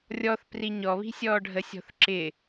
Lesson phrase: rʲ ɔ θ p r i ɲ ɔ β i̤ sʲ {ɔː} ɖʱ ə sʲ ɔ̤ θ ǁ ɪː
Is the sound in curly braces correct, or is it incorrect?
correct